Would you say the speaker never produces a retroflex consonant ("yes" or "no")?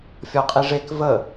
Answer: no